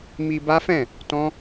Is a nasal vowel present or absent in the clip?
present